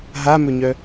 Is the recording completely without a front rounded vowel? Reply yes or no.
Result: no